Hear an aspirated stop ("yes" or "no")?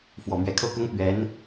yes